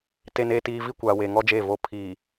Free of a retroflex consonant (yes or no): yes